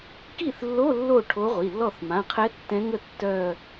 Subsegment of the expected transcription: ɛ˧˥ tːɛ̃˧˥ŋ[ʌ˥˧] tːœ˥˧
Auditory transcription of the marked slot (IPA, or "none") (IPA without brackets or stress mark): ə˥˧